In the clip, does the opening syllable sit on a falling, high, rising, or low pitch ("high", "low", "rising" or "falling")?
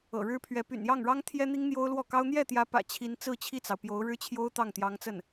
low